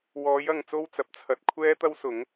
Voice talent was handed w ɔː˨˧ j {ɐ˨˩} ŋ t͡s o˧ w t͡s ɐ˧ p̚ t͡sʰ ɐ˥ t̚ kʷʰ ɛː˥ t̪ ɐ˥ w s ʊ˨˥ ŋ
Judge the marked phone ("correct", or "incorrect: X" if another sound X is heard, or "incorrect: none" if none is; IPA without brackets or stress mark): incorrect: ɐ˨